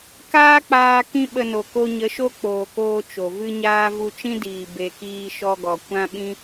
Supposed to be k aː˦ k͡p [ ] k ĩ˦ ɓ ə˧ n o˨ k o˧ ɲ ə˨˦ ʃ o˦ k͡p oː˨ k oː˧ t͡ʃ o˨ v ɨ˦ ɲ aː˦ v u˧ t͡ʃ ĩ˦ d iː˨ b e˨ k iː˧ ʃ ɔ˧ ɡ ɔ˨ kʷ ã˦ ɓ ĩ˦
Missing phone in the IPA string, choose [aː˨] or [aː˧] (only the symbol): aː˧